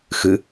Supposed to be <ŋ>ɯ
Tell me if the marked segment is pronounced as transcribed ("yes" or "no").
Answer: no